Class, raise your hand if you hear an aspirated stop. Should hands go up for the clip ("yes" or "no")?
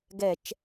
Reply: no